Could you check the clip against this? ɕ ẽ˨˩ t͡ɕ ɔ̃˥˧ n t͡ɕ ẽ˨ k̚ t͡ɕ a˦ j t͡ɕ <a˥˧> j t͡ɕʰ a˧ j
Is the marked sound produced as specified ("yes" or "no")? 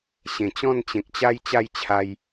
yes